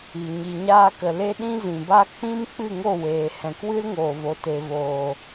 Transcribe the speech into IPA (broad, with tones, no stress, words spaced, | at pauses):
i˨ ɲi˨ɲaː˧kə˨ le˦ɗĩ˦zĩ˨ba˦ k͡pĩ˦m k͡pɨ˦˨ŋo˦˨weː˨ hɛ̃˨kwɨ˦l ŋoː˨vo˨ te˨voː˨